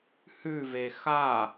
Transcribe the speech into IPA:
h ʉ v e x a

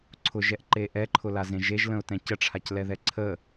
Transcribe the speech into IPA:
ǀʰ ʊ ʒ ɛ ʔ ǃ e ʔ ɛ ǃʰ ʊ l a z ẽ ʒ e ʒ l ə̃ ʊ̯ t ɛ̃ c ə ʈ͡ʂʰ a c l ɛ ð ɛ ǀʰ ə

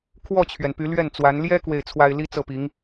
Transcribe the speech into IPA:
kʰ w ɔ˥˩ t͡ɕʰ ɥ ɛ˩ n p y˧˥ l ɥ ɛ˥˩ n t͡s w a˧˥ n l j ɛ˥ k w e˥˩ ɪ̯ t͡sʰ w a˥ ɪ̯ l i˥ t͡s ɤ˥˩ p i˧˥ ŋ

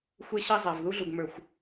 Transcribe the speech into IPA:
xʷ e˦ ɕ ɛ˦ zˤ a˨ v ð u˦ ɮ u˨ ɡ m ə˞˨ xʷ

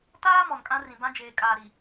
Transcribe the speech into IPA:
t aː˦ m ɔ˨ n kʼ ã˦ r ĩ˨ b ã˦ d͡ʒ eː˨ kʼ aː˨ ɾ i˨

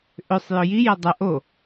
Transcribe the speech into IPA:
ʔ ʏ sˤ j ʏ j i j ɐ dˤ ɐ ʔ o

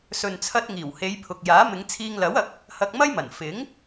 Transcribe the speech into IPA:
s ɵ˨ n t͡sʰ ɐ˧ t̚ ŋ iː˨˩ w h e˨˧ j pʰ ʊ˨ k̚ j aː˨˥ m ɪ˨˧ ŋ t͡sʰ iː˧ ŋ l ɐ˨˥ w ɐ˨˥ k̚ | h ɐ˧ k̚ m ɐ˥ j m ɐ˨˩ n f ɪ˨˥ ŋ

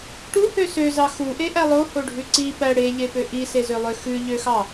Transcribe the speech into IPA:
ʈ u h ø s ø z ɑ x u ʔ e ʔ æ lˠ o h o ɖʱ ʉ ǀ i p æ ɽ e ʎ e p ø ʔ i s e z ø lˠ ø x ʉ ʎ ø x ɑ

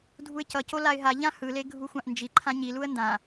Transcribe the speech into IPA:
dʱ u ɪ̯ c ʌ c o l a ɪ̯ ɦ a ʎ ã h ɯ l e ɡʱ u xʷ ã ʔ n d͡ʒ i ǃʰ ã ɲ i l u ə̯ n d ã

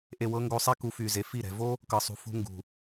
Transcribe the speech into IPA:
ʔ e˨ w ɤ˧ ŋ ɡ o˧ sˤ ɛ˦ k u˧ f y˨ z e˨ f i˦˨ ɾ ɛ̤˨ v o˦ | k ɤ˨ sˤ ṳ˨ f ṳ˧ ŋ ɡ ṳ˨

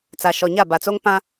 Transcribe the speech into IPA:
t͡s a˨ ʃ ɔ˨ ɲ a˦˨ b a˨ t͡s o˦ ŋ p ã˦

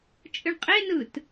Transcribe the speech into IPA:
t͡ʃʼ ɨ ɳ qʼ e n ɯ t

